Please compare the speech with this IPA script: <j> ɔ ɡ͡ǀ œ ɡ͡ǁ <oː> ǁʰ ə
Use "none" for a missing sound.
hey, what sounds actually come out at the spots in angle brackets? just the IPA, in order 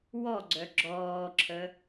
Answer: w, ɔː

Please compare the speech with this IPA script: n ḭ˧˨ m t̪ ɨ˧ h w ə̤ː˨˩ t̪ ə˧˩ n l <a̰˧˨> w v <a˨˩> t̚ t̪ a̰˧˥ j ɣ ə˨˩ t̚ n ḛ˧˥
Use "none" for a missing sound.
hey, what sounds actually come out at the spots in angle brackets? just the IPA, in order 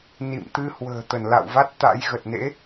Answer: a̰˧˨, a˦˥

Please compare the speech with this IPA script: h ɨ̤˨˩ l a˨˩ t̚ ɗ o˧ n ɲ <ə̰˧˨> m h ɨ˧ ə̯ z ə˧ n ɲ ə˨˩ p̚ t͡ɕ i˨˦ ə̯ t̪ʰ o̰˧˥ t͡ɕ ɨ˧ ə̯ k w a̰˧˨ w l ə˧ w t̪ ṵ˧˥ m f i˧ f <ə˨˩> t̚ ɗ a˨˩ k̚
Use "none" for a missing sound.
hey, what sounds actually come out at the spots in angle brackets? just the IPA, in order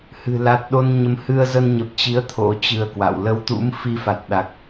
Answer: ə˨˦, a˨˩

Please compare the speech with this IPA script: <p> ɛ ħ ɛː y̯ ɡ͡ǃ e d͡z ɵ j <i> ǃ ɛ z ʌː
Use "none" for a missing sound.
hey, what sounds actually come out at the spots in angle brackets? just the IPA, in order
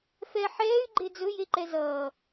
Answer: f, e

